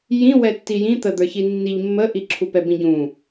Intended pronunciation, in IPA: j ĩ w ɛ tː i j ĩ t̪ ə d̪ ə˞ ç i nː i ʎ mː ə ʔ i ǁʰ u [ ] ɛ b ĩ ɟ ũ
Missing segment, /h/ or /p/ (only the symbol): p